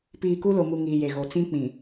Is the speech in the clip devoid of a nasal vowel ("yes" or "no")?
no